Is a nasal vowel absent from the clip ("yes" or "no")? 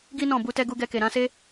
no